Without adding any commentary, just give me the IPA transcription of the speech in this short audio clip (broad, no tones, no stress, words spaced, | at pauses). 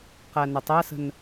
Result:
qænətˤæsə̤n